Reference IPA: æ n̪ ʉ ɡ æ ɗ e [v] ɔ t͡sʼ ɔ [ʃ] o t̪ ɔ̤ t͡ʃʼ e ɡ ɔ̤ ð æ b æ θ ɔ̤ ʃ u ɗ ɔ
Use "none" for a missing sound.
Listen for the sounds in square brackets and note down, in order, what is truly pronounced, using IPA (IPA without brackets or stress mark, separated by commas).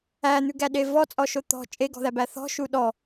v, ʃ